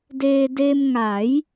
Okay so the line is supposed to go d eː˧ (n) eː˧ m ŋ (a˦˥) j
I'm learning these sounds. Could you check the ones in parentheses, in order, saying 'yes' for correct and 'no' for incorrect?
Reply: no, no

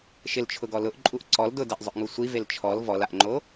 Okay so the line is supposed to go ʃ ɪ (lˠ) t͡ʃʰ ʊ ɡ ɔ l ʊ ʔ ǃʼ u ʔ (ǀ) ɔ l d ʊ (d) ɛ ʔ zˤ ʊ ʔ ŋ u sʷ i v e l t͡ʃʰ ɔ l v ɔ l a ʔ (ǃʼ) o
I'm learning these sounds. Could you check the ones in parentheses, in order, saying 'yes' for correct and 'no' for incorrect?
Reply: no, yes, yes, no

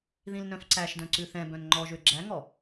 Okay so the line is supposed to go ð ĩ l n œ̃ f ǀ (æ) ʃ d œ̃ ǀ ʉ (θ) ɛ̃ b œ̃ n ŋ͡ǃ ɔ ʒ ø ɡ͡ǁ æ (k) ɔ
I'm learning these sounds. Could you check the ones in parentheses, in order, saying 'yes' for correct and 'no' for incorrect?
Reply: yes, yes, no

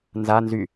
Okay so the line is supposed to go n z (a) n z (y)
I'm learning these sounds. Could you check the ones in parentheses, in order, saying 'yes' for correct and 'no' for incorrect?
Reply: yes, yes

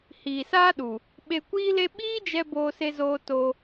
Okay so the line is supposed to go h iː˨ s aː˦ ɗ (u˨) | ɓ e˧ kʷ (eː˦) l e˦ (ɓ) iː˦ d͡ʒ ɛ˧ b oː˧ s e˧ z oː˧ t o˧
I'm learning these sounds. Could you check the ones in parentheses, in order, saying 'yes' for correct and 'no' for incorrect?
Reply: yes, no, yes

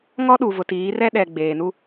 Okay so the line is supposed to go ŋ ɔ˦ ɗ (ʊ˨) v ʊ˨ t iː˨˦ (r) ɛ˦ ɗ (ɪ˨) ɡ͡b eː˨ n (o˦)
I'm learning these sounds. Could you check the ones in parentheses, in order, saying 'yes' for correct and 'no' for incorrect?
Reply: no, yes, no, no

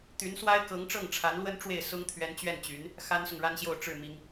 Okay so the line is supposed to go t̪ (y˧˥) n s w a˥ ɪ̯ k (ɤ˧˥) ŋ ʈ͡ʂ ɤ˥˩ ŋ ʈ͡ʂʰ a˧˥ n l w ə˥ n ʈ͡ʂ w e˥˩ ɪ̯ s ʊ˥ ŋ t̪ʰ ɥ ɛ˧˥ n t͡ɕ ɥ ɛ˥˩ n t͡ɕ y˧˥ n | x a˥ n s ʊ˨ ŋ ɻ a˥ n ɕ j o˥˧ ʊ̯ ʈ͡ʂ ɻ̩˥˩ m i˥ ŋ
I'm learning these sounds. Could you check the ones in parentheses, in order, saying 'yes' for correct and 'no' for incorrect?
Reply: yes, yes

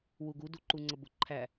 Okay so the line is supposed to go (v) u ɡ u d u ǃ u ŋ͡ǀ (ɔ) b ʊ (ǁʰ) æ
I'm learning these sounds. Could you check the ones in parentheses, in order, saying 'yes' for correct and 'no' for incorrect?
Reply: no, no, no

